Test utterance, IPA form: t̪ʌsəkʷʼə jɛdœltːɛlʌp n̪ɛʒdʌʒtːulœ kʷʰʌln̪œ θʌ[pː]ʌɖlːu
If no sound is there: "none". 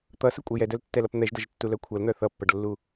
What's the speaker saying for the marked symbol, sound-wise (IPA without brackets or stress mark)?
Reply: pː